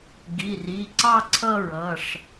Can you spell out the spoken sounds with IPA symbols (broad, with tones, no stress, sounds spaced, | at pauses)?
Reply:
ɡ i˩˧˩ r i˩˧˩ ǀ ɑ˥˧ ǀʰ ʌ˥˧ ɹ ʌ˩˧˩ ʂ